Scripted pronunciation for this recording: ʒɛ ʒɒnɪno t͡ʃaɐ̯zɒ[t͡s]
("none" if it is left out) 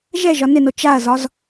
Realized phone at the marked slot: z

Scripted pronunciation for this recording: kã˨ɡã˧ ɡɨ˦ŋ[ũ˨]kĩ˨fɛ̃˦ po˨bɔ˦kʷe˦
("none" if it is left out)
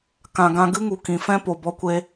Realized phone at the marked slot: u˨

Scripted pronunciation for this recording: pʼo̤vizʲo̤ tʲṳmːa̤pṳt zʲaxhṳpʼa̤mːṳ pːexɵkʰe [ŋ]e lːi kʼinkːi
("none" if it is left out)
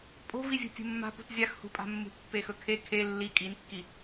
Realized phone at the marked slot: kʰ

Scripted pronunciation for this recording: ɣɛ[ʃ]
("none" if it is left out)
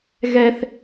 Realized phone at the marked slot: θ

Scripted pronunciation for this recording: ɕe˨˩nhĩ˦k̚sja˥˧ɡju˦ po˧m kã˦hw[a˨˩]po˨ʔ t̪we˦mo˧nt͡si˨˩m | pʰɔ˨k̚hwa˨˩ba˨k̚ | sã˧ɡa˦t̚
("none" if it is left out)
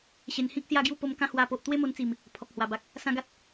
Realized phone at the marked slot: a˧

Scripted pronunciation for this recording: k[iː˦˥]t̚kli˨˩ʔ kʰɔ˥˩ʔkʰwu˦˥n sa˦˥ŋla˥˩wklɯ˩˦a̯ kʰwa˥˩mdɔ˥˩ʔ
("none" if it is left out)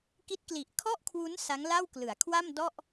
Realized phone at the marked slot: i˦˥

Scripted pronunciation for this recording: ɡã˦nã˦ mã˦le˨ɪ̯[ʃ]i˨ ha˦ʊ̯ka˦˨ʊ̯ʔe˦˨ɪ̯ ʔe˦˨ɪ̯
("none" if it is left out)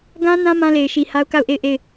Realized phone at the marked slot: ʃ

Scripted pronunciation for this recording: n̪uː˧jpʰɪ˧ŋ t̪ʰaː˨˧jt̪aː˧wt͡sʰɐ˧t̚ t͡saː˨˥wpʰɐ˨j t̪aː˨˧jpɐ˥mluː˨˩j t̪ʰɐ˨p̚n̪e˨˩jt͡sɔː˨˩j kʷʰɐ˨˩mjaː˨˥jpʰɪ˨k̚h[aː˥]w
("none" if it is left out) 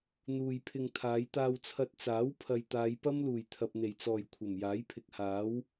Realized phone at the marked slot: aː˨˥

